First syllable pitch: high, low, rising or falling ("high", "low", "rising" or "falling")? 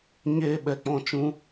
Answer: high